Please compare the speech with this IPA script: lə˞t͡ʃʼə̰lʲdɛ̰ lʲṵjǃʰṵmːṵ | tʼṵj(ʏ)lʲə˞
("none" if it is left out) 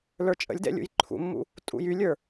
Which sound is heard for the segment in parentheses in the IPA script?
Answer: y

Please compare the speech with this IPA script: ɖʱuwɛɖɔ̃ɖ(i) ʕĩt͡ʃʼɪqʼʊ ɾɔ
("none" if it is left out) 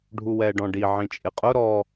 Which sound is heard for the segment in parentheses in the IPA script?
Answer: i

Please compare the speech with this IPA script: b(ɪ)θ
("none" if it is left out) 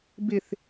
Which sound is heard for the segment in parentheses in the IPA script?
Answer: ɪ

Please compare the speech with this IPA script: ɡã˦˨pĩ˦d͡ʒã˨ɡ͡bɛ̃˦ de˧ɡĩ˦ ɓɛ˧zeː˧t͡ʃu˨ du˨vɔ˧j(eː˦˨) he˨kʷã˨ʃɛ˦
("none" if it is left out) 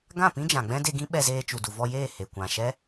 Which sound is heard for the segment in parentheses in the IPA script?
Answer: eː˦˨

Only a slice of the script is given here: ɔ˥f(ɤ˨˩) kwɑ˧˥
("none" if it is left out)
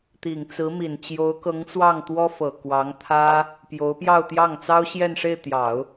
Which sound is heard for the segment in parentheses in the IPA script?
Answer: ɤ˨˩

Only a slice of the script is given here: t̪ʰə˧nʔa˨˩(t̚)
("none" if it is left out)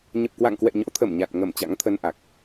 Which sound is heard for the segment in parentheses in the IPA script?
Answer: k̚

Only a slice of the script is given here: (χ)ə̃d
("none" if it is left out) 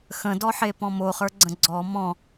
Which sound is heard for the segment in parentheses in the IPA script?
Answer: x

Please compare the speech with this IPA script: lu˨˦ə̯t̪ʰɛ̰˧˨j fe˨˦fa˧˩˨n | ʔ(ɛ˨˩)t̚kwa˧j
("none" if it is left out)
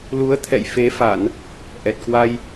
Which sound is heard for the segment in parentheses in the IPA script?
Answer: ɛ˨˩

